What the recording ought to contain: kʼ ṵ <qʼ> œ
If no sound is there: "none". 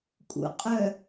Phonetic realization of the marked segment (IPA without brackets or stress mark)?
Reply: qʼ